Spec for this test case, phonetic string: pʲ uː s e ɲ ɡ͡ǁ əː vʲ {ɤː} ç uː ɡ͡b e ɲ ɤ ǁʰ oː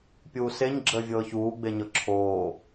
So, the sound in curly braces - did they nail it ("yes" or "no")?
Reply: yes